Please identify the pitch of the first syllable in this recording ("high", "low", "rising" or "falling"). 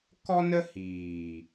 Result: high